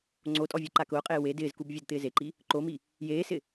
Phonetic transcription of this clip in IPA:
ŋ͡ǀ o tʼ ɔ vʲ ɔ ǃ a k ʊː qʼ eː w e d ɪː z k u b vʲ o d t̪ ɪː z e ǃ i | ǃ o m i | j eː s ɪ

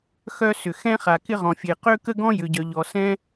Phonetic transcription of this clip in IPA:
x œ˥ s ʏ˩ x ɛ̃˥ χ a˩ k ɪ˥ ʁ ɔ̃˩ fʲ e˩ q ø˥ k ə˥ ɡ ɔ̃˥ j ʏ˩ ɟ œ˩ ʎ ɔ˩ s ɛ̃˥

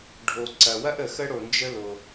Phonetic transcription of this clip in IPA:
ɖʱ o˩ ǀ ɐ˩ w ɐ˥ ʔ ə˩ x ə˥ ɽ o˩ n d͡ʒ ə˥ l o˩

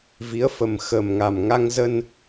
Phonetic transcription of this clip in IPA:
v i˨˦ ə̯ f ə˨˩ m x ə˨˩ m ŋ a˨˩ m ŋ a˧ ŋ z ə˧ n

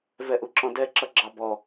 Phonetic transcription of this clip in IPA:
v ɛ ʔ u ǁ ɔ̃ d ɛ ǁ ʌ ɡ͡ǁ ɑ b ɔ

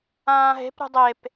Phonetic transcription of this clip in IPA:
ãː ɦ e̤ p ɾ ṳ dˤ e p

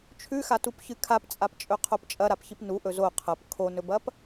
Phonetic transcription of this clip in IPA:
t͡ʃʰ ʉ x a t u p ç ɨ kʰ a p t͡sʼ a p t͡ʃʼ ɵ qʰ o p t͡ʃʼ ɐ ɾ a p ç i p n u ʔ ɵ z o qʰ ɐ p kʰ o n ɵ b ɐ p

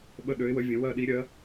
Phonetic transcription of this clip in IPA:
ɓ ə˥˨ ɗ ø˨˦ ɪ̯ w ə˨˦ vʲ ə̃˨˦ w ɜ˥˨ ɗ i˨˦ ɾʲ ɜ˨˦

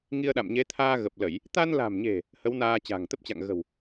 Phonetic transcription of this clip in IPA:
ŋ i˧ ə̯ ɗ a̰˧˨ m ɲ e˨˦ t̪ʰ aː˧ ɣ ə˨˩ p̚ l ə˧˩˨ j | t̪ a˧ n l a̤˨˩ m ɲ e̤˨˩ | h ə˨˦ w n aː˧ t͡ɕ a̤˨˩ ŋ t̪ ə˦˥ p̚ t͡ɕ a̰˧˨ ŋ ɣ ə̤˨˩ w

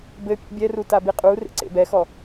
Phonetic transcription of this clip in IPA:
b ɘ pʲ ḛ bʲ ɛ r u t a b i qʼ u r ḛ ǀ ḛ b ɛ x ɔ

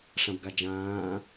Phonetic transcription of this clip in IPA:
ʂ ã b ɡ a d͡ʒ ãː

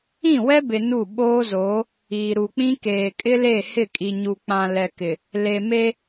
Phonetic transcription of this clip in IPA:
ĩ˦˨ w ɛ˦ b ɪ˨ n u˦˨ ɓ oː˦ z oː˨˦ | iː˨ ɾ u˨ k͡p ĩ˦ k eː˨ kʼ ɪ˦ l e˦˨ h ɪ˦˨ kʼ i˨ ɲ u˨ k͡p ã˨ l ɛ˨ k ɪ˨ | l e˨ m e˦

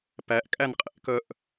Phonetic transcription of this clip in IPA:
p æ ʔ kʼ æ n qʼ ḛ ʔ k œ ʔ

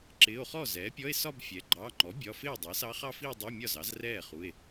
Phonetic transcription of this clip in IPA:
ǁ ɪː˩˧˩ o̯ χ ɔ˥˩ z ɛː˩˥ pʲ ɔ˧˥˧ e̯ s ɒ˥˧ b fʲ ɛ˩˥ ɡ͡ǃ ɑː˩˧˩ ŋ͡ǃ ɔ˩˥ bʲ ɒ˩˧˩ f ɪː˥˩ dˤ ɛ˩˥ s ɑ˧˥ χ ɑ˥˧ f i˥˧ o̯ dˤ ɪː˧˥˧ mʲ ɒ˥˩ z ɑ˩˥ z r ɛː˥˩ χ u˩˧˩ e̯

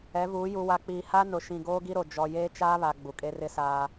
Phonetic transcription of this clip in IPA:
ɛ˨˦ v uː˨˦ j u˨ w a˨ k͡p iː˨ h a˦ n ʊ˨ ʃ ĩ˨ ɡ oː˦ ɡ i˦ ɾ o˨ d͡ʒ ɔ˨ j eː˦ t͡ʃ aː˦ β a˨ ɡ͡b u˨ kʼ e˦ r ɪ˦ s aː˦

